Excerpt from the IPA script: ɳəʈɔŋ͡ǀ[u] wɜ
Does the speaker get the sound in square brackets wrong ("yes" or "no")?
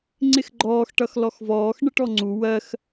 no